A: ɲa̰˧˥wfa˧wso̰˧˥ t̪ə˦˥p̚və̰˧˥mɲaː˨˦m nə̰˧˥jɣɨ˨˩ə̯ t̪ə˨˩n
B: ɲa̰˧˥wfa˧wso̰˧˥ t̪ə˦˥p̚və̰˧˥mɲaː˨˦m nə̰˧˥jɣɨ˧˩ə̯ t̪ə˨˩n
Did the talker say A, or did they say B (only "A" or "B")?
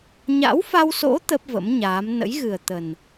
A